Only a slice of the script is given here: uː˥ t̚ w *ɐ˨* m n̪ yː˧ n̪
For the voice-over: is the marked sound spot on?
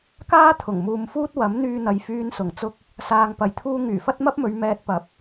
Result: no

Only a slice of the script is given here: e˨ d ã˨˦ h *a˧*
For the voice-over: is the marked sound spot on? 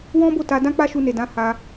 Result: yes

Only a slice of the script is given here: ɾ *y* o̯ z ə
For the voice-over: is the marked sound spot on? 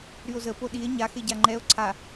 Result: yes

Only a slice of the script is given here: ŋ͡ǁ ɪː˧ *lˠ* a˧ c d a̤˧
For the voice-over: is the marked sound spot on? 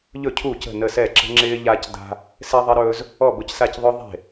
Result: no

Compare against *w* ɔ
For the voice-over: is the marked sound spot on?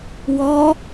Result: yes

